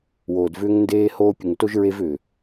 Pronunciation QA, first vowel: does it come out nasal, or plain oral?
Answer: oral